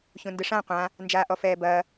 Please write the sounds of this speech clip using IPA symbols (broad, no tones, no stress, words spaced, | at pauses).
çũndɨʂã qʷã | nd͡ʒaːʔɔfɛːbɐː